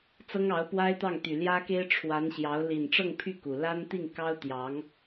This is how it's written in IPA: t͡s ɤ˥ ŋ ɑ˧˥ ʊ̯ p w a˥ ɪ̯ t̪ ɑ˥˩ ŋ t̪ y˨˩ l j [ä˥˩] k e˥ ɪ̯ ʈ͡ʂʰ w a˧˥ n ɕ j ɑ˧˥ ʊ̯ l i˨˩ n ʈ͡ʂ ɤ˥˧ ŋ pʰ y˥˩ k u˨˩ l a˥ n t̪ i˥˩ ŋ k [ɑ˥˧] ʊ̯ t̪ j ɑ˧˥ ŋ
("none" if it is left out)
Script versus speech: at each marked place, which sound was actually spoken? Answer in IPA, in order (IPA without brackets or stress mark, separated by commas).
ä˥, ɑ˥